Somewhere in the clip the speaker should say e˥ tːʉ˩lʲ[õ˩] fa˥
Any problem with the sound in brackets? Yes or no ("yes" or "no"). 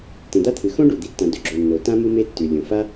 no